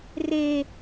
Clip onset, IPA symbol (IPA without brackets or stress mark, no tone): r